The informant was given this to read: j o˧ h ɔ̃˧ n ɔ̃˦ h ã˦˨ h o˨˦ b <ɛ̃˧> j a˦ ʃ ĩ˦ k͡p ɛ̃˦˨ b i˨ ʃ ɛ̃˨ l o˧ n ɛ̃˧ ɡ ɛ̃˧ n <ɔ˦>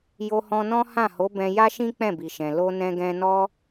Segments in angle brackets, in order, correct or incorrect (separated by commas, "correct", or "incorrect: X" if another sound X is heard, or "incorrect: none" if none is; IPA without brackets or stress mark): correct, correct